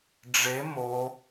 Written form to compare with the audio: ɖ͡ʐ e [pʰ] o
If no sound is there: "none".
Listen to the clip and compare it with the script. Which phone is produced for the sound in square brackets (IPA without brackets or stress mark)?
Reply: m